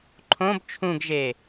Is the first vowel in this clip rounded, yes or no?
yes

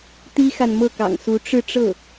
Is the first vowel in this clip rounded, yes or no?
no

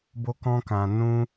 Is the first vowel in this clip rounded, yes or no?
yes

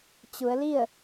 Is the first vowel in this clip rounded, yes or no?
yes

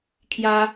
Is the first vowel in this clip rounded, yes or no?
no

